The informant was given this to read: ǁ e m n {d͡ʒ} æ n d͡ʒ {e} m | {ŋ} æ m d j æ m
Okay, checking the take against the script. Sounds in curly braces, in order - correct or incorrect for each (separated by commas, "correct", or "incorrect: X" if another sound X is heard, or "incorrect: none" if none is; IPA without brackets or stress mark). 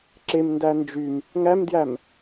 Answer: incorrect: d, incorrect: y, correct